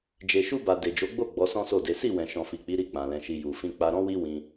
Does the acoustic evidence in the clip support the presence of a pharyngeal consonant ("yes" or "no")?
no